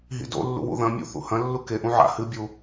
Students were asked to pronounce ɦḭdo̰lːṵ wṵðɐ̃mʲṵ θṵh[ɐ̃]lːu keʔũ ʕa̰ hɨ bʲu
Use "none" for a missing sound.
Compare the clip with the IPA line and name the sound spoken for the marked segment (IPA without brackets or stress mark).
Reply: ɐ̃